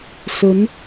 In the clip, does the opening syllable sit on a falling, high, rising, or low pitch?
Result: rising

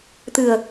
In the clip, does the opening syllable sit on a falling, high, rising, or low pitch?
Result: low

